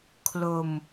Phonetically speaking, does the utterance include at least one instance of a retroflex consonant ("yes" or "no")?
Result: no